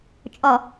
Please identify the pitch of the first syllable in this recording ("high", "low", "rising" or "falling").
low